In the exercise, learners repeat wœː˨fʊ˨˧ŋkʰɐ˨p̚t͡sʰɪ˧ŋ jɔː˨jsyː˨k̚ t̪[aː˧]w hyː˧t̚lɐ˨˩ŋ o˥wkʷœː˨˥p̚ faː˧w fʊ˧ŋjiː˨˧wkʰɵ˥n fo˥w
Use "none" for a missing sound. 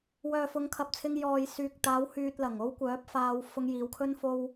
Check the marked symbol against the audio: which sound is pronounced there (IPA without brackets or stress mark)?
aː˨˧